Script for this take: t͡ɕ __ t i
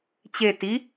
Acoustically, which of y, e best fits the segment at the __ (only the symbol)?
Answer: e